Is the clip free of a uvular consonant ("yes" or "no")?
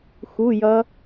yes